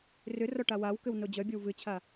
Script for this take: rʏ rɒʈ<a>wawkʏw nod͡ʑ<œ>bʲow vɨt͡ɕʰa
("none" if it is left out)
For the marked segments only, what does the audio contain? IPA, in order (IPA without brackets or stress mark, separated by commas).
a, œ